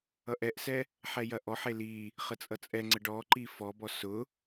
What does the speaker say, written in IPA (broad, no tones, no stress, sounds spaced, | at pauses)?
ʌ ʔ ɛ ʔ s ɛ | ħ ɛ j ɐ ʔ ɔ ħ e l i | χ ə t͡sʼ ʌ t͡sʼ ɛ ŋ͡ǀ ə ɖ ɔ ǃ i f ɔ b ɔ s ʊ